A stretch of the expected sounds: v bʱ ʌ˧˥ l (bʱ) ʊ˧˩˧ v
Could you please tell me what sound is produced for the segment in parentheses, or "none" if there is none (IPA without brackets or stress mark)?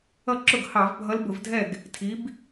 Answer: b